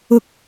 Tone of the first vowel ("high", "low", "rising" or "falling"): low